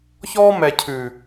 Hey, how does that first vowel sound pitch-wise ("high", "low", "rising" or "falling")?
high